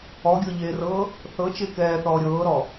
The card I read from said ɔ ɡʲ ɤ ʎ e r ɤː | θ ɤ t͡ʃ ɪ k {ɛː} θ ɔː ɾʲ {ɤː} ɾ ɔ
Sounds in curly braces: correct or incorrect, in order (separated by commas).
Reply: correct, correct